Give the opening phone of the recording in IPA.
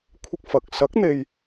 kʷʰ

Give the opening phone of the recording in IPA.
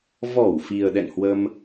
v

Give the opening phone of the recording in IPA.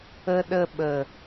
ə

